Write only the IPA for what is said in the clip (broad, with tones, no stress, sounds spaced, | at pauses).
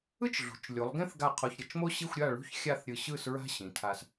ɯ˥ t͡ʃ ɮ ṳ˩˧ t͡ʃ lʲ u˩˧ lˠ ɡ ẽ˥ θ ɡ a˧˩ qʰ o˧ ç ɾʲ ʌ˧˩ t͡ʃ m o˥ ɕ i˥˧ xʷ ɾʲ a˥˧ ɭ ṳ˥˧ ç xʲ a˥˧ θ ɾʲ ɯ˧˩ ɕ ɯ˥˧ s ɹ a̤˥ ɕ ĩ˩˧ tʰ a˧ s